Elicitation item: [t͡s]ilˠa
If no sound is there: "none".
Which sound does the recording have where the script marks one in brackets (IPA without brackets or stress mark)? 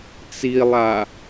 t͡s